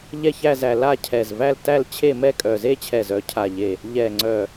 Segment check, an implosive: absent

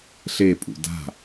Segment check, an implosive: absent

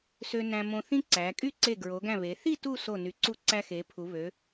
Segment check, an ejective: present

